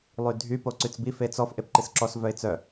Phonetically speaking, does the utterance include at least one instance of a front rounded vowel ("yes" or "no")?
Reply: yes